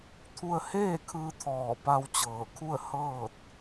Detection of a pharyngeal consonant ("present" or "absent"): absent